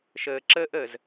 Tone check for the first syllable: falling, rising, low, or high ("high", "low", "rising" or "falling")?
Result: low